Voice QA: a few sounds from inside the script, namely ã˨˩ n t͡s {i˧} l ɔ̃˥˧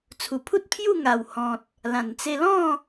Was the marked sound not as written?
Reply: yes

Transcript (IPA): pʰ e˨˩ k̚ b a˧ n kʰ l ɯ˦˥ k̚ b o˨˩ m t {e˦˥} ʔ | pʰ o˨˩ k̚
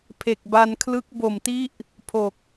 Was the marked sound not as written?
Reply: yes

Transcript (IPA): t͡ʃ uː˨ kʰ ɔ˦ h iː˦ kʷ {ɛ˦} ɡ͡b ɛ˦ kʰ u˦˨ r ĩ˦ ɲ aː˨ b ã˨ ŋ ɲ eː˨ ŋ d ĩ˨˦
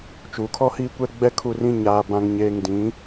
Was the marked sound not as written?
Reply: no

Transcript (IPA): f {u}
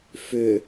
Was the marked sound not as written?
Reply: yes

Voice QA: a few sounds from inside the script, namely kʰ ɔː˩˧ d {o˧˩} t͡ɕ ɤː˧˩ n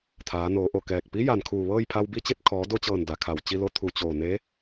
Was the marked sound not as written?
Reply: yes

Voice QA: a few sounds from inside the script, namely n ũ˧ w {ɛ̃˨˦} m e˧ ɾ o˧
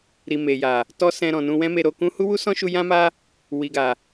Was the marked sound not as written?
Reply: yes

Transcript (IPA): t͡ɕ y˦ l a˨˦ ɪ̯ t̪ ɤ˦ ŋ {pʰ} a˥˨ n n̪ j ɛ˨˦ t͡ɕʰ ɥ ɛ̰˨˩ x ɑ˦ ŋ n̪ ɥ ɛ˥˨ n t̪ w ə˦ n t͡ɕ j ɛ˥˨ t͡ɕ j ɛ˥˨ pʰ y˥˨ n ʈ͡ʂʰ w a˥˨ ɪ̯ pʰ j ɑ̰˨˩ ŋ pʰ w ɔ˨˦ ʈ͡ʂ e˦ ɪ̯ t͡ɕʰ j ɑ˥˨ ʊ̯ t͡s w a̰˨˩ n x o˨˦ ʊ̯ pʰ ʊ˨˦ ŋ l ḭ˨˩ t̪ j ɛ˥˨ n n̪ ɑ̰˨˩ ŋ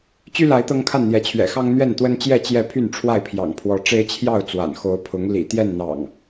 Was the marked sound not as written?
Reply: yes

